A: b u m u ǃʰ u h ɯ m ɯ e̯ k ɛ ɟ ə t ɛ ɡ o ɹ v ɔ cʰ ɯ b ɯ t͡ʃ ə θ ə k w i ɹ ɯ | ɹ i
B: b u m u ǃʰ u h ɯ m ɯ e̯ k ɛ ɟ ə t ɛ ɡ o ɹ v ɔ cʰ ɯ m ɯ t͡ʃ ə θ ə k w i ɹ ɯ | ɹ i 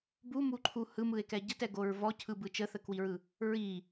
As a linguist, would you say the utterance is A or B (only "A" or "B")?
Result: A